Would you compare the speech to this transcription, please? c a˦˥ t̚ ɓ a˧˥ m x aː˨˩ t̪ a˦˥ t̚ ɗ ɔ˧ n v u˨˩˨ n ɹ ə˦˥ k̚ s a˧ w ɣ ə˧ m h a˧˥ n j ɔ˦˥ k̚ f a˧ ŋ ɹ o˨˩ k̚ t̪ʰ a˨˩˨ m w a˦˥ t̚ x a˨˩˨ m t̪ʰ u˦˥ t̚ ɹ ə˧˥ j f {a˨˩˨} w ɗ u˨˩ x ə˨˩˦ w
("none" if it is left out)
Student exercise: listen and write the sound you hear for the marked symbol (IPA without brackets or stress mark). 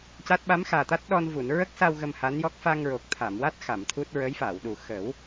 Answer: a˨˩˨